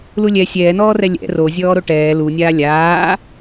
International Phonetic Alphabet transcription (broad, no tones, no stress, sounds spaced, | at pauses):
l u lʲ ɛ sʲ ɛː n ɔː r ɛ lʲ ɛ̰ r o zʲ ɔː ɾ o ʈ ɛː l u nʲ aː lʲ aː